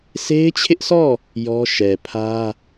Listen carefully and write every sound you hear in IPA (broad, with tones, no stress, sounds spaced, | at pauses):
sʰ e˦ ɪ̯ t͡ɕʰ ɪ˦ ʔ s ɔ˦˨ | j ɔ˦ ʃ ɛ˨ pʰ ä˦